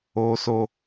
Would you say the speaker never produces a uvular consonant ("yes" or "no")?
yes